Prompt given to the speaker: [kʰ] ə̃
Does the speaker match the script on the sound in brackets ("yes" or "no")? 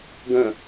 no